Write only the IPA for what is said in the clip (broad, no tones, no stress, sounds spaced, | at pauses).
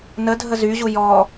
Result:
n ə dʱ ə z y ʑ u j ɔ